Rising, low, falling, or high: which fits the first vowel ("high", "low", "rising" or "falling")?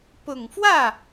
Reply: low